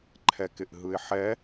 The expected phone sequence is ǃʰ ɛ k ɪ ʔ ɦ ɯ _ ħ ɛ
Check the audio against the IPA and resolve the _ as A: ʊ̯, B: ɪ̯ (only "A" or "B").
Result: B